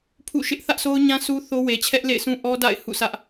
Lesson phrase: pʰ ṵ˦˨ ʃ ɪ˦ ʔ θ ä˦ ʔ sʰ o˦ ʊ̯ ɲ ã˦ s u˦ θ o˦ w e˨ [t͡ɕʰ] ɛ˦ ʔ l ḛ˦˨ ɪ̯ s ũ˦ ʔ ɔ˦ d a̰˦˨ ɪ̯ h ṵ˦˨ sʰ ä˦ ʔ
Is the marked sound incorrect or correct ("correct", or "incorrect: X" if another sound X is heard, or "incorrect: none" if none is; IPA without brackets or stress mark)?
correct